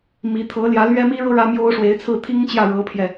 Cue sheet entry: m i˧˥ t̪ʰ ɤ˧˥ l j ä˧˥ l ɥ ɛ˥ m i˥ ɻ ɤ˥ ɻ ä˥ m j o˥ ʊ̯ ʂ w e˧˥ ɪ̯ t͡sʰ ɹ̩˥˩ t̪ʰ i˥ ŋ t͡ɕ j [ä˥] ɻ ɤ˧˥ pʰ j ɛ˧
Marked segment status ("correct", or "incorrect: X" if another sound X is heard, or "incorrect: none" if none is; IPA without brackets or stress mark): incorrect: ä˥˩